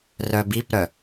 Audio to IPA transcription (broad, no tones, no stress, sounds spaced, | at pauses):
r œ b i p ɾ œ